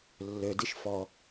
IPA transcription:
lː ø d i ʃ f ɔ

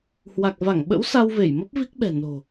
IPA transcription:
h w a˨˩ k̚ v a˧˩ ŋ ɓ ə̰˧˥ w s a˧ w v e˧˩ j m ə˦˥ p̚ v i˦˥ k̚ ɓ ɛ̤˨˩ n o̤˨˩

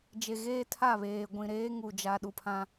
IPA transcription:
d͡ʒ e˨ ɣ eː˦ tʰ a˦˨ β eː˨ ɡʷ ĩ˨ ɾ eː˦ ŋ u˨ d͡ʒ a˨ ɗ u˨ pʰ ã˦

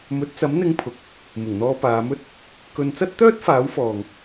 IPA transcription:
m ɵ˨˥ t̚ t͡s ɐ˨˥ m n̪ ɪ˧ ŋ pʰ ʊ˨ k̚ | m ɪ˨˩ ŋ n̪ ɔː˧ p aː˨˧ m ɵ˥ t̚ | k ɵ˨ n t͡s ɐ˥ t̚ t̪ œː˥ t̚ f aː˨˥ w f ɔː˨ ŋ

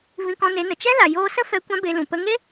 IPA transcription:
v ĩ˧ k ɔ̃˧ n e˨˦ n ə˨ t͡ʃ ɛ˦ l a˨ j oː˧ s ə˦ f ɛ˧ kʷ ã˦ b e˧ l ũ˨ p ə˧ ŋ e˦

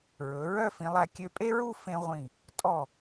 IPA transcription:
ɹ ɵ˩˧ ɹ œ˥˧ f ĩ˩˧ lˠ æ˧ kʲ ø˧ pʼ e˥ ɹ u˥˧ f ẽ˧ ʁʷ ĩ˧˩ | tʼ ɔ˧˩

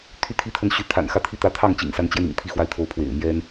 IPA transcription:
t̪ʰ y˥˩ t̪ʰ i˥ t̪ʰ ə˥˩ n ɕ y˧˥ t̪ʰ a̰˨˩ n x ä˥˧ t̪ʰ i˥˩ t̪ ä˥ t̪ʰ ɑ˥˩ ŋ t͡ɕ ḭ˨˩ ŋ s a˧˥ n t͡ɕ j ɛ˧ n ḭ˨˩ ŋ t̪ʰ i˥˧ x w a˥˩ ɪ̯ t̪ʰ o˧˥ ʊ̯ pʰ w ḛ˨˩ ɪ̯ m j ɛ˥ n

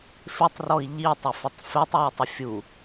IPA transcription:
f ɪ tˤ r ɔ i̯ ʎ i tˤ ɪ f ʊ tˤ f e tˤ w i tˤ ʊ fʲ u

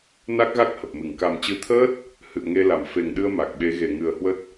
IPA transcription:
n a˦˥ k̚ ɣ a˦˥ k̚ h ə˨˩ p̚ m ɨ˧˩ ŋ k a˨˩ m t͡ɕ ɨ˨˦ t̪ʰ əː˦˥ t̚ | h ɨ̰˧˨ ə̯ ŋ e˧ l a˧˩ m f e˨˩ ŋ ɗ ɨ˧ ə̯ m a˨˩ k̚ ɓ e˨˦ ɣ e˧˩ ŋ ɨ˨˩ ə̯ h w ə˦˥ t̚

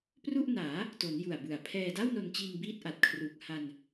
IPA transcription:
p r u˥˩ ʔ n aː˩˦ | t o˩˦ n j u˨˩ a̯ b ɯ˨˩ a̯ pʰ ɛː˧ d a˥˩ w n o˧ n t͡ɕ iː˧ ŋ b iː˥˩ t̚ ʔ a˨˩ t̚ kʰ r uː˨˩ k̚ h a˧ n

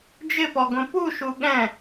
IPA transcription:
d͡ʒ ɪ p ɔ ɡ õ p u ʃ u ɠ ɛ̃

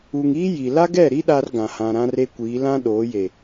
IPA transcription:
u˨ ŋ iː˦ j i˨ l a˦ ɡ ɛ˦˨ ɾ i˦ ɗ a˦ r ɡ ã˨ h ã˨ ɾ ã˦ r e˦ kʷ iː˨˦ l ã˦ ɗ oː˨˦ j e˨

